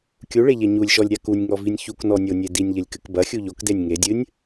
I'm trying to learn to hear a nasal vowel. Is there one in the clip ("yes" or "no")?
no